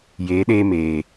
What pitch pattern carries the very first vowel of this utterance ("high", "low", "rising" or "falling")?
rising